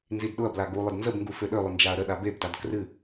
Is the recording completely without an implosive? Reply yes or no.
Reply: no